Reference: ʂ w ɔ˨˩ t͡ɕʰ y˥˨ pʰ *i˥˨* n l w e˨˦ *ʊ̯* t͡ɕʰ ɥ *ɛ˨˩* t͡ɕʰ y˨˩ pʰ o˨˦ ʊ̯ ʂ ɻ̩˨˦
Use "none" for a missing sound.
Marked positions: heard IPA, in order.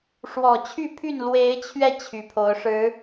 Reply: y˥˨, ɪ̯, ɛ˧

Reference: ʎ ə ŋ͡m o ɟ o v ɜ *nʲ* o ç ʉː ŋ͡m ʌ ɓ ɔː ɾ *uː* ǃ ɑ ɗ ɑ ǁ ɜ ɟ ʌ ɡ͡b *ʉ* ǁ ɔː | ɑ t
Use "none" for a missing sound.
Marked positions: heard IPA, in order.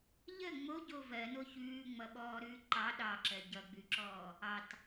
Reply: n, ʉː, ʉ

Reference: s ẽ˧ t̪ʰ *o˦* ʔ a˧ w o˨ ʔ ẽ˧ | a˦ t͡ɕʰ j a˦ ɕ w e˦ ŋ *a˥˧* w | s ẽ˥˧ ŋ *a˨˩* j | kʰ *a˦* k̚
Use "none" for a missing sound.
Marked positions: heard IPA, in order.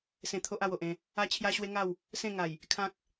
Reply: o˦, a˥˧, a˨˩, ã˦

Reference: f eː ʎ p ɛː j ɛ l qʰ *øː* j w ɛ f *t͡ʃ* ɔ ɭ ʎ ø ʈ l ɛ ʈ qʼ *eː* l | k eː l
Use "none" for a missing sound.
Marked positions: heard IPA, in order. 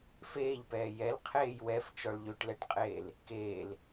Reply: eː, t͡ʃ, eː

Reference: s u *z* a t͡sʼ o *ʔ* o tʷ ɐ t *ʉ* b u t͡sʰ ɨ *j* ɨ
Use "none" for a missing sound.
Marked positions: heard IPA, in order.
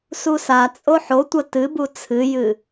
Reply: s, ħ, ɨ, j

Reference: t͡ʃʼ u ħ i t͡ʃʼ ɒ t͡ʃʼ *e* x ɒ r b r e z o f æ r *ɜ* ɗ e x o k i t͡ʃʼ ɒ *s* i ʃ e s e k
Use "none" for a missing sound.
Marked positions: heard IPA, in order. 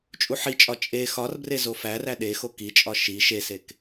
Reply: e, æ, ʃ

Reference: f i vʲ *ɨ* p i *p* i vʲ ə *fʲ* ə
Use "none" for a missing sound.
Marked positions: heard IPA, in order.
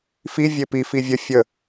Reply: e, f, fʲ

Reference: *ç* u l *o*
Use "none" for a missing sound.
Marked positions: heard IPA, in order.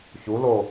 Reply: ç, o

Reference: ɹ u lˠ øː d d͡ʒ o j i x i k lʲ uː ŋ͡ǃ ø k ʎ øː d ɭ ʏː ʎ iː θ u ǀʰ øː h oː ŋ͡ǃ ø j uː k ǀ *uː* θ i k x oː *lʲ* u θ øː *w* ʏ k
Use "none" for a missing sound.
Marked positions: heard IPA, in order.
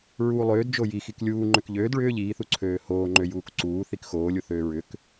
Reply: uː, lʲ, ɹ

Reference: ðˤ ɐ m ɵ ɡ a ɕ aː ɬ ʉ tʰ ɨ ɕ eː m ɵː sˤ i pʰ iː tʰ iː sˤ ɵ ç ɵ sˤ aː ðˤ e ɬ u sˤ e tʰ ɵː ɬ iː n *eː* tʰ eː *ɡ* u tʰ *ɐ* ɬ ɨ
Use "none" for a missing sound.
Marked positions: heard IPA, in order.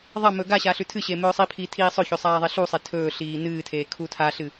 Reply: ɨː, kʰ, a

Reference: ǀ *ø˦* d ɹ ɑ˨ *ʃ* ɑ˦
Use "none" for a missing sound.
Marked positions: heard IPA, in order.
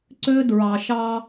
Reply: ø˦, ʃ

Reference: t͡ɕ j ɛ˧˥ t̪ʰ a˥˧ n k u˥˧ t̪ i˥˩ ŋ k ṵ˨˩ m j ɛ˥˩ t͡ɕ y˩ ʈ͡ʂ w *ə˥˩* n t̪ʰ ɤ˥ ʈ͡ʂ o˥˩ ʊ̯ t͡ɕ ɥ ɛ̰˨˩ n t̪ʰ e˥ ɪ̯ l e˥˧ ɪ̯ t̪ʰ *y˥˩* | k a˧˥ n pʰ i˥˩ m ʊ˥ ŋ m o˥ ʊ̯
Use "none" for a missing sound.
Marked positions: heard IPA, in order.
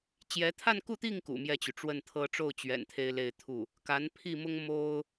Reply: ə˥˩, u˥˩

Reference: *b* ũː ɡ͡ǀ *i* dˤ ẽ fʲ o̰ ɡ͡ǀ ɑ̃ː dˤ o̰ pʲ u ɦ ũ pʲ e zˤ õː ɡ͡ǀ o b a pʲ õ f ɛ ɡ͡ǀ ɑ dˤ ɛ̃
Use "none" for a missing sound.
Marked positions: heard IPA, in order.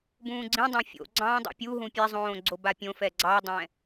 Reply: b, ĩ

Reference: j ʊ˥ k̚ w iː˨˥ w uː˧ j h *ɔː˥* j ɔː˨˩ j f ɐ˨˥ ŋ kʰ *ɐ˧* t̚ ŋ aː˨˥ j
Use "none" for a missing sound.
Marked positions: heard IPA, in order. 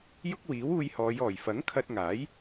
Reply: ɔː˨˧, ɐ˧

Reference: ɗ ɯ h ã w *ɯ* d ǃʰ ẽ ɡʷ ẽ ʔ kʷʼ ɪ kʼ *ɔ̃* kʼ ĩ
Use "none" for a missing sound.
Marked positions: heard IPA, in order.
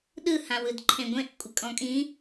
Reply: ɯ, ɔ̃

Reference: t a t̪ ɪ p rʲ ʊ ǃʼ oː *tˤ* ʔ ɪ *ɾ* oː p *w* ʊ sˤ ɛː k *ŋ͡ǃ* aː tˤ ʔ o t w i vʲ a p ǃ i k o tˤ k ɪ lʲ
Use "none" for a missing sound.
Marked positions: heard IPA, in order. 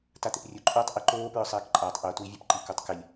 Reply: tˤ, ǃ, ɹ, ǃʼ

